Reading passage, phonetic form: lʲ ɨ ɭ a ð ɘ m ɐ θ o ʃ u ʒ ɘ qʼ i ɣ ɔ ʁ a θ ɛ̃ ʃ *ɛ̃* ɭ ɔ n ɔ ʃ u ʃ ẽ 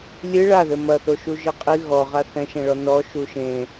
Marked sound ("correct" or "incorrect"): correct